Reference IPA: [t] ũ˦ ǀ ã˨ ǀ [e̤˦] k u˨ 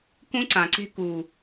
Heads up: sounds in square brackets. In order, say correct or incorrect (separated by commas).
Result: incorrect, correct